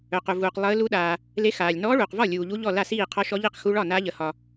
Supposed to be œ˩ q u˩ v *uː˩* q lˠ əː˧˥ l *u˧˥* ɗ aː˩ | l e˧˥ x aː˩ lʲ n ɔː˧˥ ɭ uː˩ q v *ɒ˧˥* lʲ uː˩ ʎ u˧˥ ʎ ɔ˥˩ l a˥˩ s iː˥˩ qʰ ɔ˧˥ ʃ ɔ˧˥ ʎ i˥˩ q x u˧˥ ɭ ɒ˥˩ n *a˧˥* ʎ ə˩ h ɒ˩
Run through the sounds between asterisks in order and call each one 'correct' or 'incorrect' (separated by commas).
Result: correct, correct, incorrect, correct